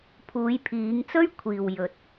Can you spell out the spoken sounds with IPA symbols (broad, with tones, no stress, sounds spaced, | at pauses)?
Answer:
pʰ uː˨˧ j pʰ iː˨˧ ŋ t͡s ɵ˥ ɥ kʷʰ iː˨ w j ɵ˨ t̚